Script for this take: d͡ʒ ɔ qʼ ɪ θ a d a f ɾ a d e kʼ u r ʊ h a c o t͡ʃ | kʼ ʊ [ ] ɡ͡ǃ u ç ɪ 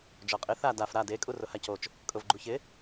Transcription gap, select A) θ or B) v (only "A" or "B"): B